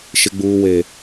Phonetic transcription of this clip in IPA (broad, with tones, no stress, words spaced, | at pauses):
ʃɪ˦ɡ͡buː˦we˦